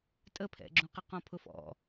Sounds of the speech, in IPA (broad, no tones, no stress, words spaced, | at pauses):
tʼəpʰɛ̰ɡ͡ǁũqə qɔ̃pʰʊfɔ̰